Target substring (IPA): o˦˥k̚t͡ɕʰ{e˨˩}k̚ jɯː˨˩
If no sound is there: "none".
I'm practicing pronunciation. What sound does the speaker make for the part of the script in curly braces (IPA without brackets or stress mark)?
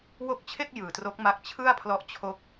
e˥˩